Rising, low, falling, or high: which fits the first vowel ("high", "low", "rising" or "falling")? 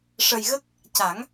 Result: low